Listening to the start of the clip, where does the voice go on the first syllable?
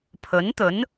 rising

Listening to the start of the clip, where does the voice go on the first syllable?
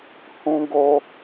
high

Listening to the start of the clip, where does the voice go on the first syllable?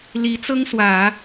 rising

